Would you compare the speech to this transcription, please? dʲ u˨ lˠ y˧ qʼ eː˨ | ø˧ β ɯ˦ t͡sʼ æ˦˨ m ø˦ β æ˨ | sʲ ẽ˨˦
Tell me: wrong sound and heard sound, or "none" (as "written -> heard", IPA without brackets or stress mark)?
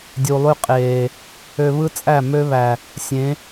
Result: none